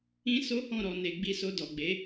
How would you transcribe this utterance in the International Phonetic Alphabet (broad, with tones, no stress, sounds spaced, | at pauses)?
ĩ˧ s o˦ h ɔ̃˦˨ ɾ ɔ˨ n e˨ ɡ͡b i˧ s o˧ d ɔ˨ ɡ͡b e˨˦